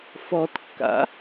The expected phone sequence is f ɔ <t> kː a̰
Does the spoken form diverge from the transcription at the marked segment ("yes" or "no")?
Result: no